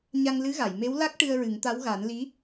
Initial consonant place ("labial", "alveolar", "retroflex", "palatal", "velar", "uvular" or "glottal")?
palatal